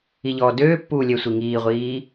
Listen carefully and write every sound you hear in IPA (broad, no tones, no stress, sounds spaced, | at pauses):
i ʎ ɔː d øː pː uː lʲ ɛ sʷ i ŋ iː ʁʷ iː